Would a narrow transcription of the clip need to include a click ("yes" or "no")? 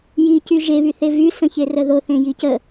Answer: no